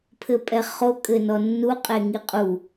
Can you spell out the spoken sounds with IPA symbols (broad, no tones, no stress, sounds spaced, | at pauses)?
pʰ ɘ pʼ ɛ χ o kʼ ɘ n ɔ nː u qʼ e ŋ i qʼ u